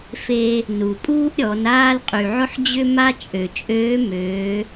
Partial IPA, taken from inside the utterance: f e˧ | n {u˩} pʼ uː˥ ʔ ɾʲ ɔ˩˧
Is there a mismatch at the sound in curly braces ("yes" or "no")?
no